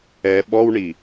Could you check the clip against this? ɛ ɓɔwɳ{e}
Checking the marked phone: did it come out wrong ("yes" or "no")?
yes